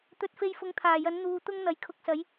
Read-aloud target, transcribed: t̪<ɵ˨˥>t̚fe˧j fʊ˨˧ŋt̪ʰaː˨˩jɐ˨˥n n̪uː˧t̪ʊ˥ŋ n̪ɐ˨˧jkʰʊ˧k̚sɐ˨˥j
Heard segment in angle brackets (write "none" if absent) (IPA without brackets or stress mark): ɵ˨˥